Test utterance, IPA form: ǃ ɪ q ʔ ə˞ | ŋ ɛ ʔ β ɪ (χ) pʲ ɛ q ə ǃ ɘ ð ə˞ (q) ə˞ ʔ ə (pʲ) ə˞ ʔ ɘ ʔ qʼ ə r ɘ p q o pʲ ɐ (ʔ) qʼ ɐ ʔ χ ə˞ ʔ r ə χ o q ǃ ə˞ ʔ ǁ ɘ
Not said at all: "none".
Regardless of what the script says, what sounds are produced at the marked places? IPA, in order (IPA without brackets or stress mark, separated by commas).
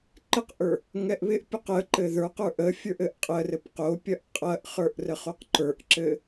ʔ, q, fʲ, ʔ